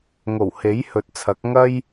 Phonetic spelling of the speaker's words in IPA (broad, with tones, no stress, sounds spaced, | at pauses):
ŋ o˨˩ w h e˨˥ j h ɵ˨ t̚ t͡sʰ ɐ˨˥ k̚ ŋ ɐ˥ j